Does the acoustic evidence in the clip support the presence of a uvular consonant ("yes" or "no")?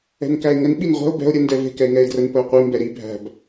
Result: yes